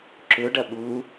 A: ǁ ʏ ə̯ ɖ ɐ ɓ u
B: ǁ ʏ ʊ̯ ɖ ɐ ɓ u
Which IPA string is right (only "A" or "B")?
B